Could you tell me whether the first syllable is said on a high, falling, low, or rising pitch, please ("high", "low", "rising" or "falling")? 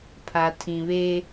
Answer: low